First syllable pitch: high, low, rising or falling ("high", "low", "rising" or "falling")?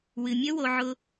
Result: low